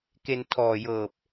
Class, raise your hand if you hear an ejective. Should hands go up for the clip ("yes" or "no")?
no